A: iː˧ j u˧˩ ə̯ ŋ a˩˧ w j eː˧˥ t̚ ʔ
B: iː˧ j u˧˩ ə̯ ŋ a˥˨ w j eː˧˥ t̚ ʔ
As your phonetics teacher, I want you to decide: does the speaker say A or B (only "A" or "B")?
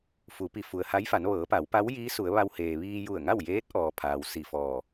B